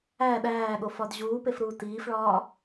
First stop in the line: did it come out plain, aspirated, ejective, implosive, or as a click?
implosive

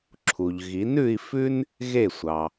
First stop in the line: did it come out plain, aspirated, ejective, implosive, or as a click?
click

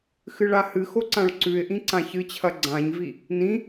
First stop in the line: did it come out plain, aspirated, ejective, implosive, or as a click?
click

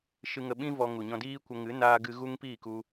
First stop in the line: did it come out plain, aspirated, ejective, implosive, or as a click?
implosive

